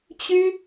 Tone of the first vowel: high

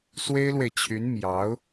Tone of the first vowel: high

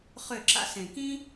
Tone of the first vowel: falling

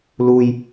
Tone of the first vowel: low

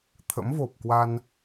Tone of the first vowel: rising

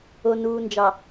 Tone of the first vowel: low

